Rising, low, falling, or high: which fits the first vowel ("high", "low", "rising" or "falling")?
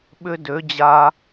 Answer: high